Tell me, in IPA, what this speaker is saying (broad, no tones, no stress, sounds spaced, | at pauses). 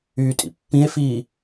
yː tʼ ḭ pː ĩ e̯ f iː